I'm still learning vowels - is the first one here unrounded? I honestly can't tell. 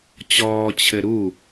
no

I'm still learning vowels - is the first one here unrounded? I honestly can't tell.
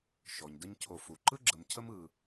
no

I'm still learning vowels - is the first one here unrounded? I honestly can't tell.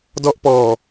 no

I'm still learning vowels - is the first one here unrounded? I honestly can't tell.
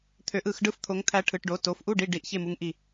no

